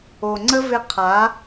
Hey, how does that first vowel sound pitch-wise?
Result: low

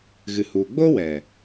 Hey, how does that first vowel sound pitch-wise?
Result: low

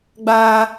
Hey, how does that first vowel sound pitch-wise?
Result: high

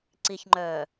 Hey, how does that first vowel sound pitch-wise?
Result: low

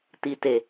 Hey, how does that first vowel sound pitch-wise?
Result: low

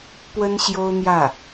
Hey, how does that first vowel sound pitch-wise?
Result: high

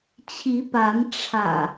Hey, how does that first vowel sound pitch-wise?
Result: rising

